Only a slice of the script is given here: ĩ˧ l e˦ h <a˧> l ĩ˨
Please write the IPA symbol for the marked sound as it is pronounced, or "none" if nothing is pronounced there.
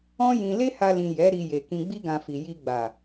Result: a˧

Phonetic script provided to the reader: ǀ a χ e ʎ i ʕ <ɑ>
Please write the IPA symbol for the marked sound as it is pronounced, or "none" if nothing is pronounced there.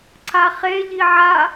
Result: a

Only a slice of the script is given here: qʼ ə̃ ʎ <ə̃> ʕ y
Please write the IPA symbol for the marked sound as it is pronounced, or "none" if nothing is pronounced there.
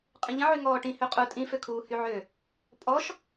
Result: ə̃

